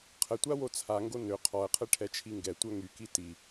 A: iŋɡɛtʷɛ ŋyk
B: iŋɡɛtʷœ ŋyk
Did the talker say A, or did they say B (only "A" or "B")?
B